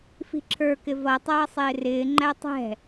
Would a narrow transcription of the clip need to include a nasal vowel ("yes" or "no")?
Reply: no